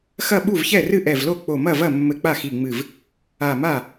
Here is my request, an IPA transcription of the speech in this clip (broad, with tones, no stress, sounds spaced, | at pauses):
x ɐ˥˩ ɓ u˥˩ v ç ɛ˥˩ r ɨ˥˩ ʔ ɛ˧˩ v l o˥˩ k͡p o˧˩ m ɐ˥˩ v ɐ˥˩ mː ɘ˧˩ k͡p a˥˩ x i˧˩ ŋ͡m ɨ˧˩ v | a˧˩ m a˥˩